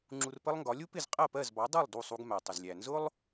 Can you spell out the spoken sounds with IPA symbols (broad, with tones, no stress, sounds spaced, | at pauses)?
ŋ͡ǁ u˧ r p ə˥ lˠ ŋ ɡ ɒ˩˥ lʲ u˥ p ɪ˥˩ z qʼ ɜ˥˩ p ɜ˥˩ z b ɑ˩˥ dˤ u˥˩ lˠ d u˥˩ sˤ u˧ ɡ m æ˩ tˤ ʊ˩ z lʲ æ˩ n z ʊ˥ lˠ